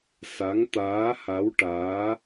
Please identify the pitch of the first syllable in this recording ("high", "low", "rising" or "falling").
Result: rising